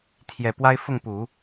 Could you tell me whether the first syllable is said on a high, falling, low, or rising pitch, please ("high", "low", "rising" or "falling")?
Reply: low